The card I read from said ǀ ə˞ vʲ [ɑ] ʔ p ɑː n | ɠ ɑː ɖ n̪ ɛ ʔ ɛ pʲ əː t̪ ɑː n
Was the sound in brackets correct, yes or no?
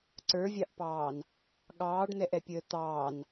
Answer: yes